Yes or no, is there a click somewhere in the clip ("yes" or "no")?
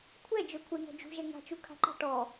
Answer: yes